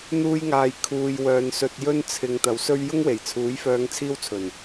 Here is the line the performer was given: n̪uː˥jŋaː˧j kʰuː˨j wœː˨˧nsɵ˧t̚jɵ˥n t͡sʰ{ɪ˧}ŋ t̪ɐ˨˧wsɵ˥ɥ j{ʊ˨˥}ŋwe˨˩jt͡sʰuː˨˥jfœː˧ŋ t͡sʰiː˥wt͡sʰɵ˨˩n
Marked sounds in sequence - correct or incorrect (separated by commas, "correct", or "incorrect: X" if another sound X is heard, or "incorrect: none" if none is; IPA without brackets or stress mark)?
incorrect: ɪ˨, incorrect: ʊ˥